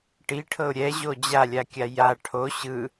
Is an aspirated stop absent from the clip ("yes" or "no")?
no